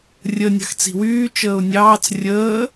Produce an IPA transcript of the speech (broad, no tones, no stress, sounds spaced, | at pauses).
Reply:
rʲ ə nʲ ɑ̤ x t͡s i̤ w yː t͡ʃ əː ʊ̯ nʲ ɑː t͡s rʲ əː